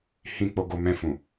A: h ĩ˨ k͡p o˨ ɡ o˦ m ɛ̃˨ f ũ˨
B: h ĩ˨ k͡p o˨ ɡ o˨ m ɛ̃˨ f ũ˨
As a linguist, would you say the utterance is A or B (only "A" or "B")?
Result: B